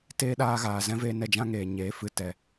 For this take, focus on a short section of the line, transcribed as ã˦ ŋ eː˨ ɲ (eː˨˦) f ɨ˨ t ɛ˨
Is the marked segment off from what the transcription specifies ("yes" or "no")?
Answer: no